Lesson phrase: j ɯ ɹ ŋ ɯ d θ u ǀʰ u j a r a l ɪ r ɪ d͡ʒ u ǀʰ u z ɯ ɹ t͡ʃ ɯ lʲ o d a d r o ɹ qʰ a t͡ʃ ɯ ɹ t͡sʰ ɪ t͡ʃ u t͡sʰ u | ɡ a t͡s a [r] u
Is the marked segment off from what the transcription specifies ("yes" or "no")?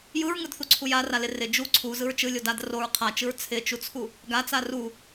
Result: no